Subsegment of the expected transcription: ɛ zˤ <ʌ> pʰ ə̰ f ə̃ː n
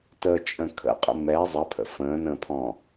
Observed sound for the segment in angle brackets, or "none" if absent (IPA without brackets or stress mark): ʌ